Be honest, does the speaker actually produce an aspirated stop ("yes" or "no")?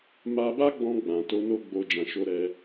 no